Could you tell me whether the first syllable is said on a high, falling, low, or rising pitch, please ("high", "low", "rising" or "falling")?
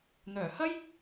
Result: low